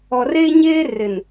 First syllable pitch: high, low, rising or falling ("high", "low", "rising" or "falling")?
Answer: low